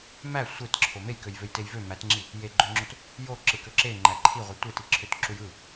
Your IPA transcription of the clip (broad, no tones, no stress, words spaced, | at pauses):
mæ sʷetǁʰo mejkøjvøjtej vø mætŋ͡ǁi | jeɡ͡ǃøŋ͡ǁot | joǁɯkø ǁeŋ͡ǃæ ǃʰiʁʷɯ tʷetiǁʰøtǁuj ɯ